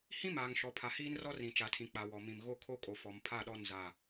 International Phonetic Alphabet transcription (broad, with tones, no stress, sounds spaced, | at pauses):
h ĩ˦ m aː˨ ŋ ʃ ɔ˨ pʰ a˨ h iː˦ n r ɔ˦ r ĩ˨ t͡ʃ a˨ tʰ ĩ˨ k͡p a˨ w ɔ˨ m ĩ˨ m ɣ o˦˨ kʰ o˦ kʼ o˨ f ɔ˨ m pʰ a˦˨ ɗ ɔ˦˨ n z a˦˨